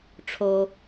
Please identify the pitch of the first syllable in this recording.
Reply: high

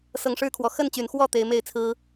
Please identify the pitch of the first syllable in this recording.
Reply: rising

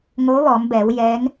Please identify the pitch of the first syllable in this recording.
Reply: rising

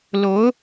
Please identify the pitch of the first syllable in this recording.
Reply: rising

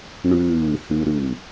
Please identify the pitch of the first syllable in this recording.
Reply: falling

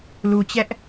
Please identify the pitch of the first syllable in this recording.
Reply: low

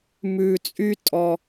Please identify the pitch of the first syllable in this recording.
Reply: low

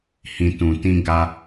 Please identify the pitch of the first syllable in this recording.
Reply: low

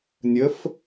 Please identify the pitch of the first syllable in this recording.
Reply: rising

